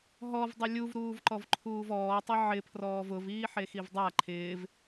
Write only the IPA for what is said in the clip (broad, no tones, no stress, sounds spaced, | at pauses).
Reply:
ɦ ɔ v dˤ ɪ lʲ u v ɾ uː v ǃ ɔ v ǃʰ uː v ɔː tˤ ɪ ʕ ɪ pʰ r ɔː v ʊ v iː ħ e x i v dˤ a ǃʰ ɪː v